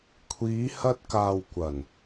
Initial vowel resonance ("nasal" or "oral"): oral